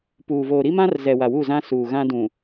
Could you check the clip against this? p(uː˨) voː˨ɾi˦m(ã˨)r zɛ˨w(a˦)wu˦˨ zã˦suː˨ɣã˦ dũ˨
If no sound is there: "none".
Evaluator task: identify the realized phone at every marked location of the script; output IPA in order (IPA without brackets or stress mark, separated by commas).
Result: uː˨, ã˦, a˨